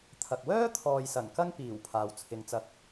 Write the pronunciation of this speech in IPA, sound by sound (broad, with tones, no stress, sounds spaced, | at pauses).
t̪ʰ ɐ˨ k̚ w œː˥ t̪ʰ ɔː˨ j s ɐ˨˩ n k ɐ˧ ŋ p iː˨˩ w pʰ aː˨ w t͡sʰ ɪ˨˥ ŋ t͡s ɐ˧ k̚